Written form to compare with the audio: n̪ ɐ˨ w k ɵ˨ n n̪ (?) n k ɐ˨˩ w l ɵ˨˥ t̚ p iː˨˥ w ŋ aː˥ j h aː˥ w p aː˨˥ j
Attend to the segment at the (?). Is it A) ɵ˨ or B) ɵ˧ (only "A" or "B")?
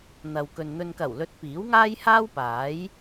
A